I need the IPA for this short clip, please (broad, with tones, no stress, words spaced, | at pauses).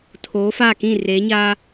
tʰoː˨˦ faː˦˨kĩ˦˨ reː˨˦ɲaː˦